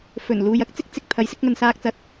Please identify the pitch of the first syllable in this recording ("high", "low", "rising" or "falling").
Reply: low